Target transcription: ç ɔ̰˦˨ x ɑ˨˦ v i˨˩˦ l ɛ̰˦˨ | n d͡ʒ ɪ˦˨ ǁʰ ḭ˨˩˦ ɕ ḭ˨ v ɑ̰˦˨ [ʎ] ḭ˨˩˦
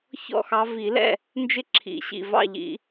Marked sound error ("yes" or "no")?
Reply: no